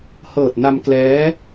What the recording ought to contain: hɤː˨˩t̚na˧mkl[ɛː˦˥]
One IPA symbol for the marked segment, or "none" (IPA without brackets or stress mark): ɛː˦˥